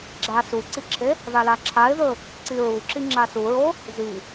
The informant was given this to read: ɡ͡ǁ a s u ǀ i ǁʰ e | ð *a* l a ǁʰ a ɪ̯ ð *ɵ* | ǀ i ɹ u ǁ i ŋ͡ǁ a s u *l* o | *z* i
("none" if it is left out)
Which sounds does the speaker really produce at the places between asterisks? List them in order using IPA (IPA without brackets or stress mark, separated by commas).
a, ɵ, ɹ, z